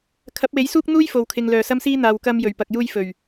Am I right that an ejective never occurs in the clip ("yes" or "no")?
yes